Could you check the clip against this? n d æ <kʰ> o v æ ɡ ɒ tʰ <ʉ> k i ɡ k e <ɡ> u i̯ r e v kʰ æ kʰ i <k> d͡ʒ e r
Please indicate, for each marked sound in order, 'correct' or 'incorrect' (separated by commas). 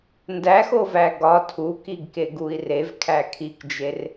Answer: incorrect, incorrect, correct, correct